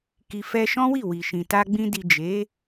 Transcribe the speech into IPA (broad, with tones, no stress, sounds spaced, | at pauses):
k i˨ f ɛ˧ ʃ ɔ̃˦ w i˦˨ w i˨ ʃ ĩ˨ t a˧ ɡ͡b ĩ˧ d i˨ d͡ʒ e˨˦